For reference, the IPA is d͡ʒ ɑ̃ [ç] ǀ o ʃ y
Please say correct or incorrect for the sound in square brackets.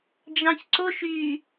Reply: correct